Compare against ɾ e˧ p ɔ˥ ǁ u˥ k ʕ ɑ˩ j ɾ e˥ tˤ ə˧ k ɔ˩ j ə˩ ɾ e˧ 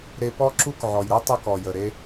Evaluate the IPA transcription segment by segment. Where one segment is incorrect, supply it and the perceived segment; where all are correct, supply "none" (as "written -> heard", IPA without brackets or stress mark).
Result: ɑ˩ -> ɔ˩